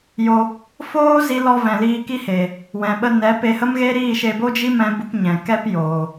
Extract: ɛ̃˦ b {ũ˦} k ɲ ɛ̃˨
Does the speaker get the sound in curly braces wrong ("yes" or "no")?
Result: yes